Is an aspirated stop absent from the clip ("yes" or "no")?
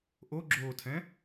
no